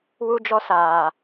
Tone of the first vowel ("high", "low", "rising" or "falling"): high